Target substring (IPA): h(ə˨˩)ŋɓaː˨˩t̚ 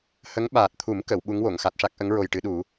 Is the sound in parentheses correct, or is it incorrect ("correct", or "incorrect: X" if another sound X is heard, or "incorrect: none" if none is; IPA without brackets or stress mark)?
incorrect: ə˧˥